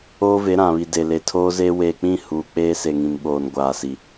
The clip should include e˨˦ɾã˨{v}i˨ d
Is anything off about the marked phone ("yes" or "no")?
yes